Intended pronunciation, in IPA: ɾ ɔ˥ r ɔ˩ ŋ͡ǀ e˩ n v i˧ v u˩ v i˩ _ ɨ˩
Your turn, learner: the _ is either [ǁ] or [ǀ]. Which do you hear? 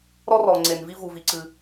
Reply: ǀ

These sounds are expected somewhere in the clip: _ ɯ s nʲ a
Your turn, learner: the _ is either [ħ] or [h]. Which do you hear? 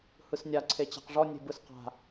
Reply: h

